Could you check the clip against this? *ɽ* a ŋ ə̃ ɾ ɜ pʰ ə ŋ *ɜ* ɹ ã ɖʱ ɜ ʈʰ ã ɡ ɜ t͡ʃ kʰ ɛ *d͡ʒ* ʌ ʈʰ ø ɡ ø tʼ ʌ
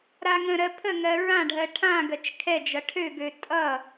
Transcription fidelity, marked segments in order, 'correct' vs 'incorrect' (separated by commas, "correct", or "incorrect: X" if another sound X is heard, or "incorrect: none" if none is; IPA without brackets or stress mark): incorrect: ɾ, correct, correct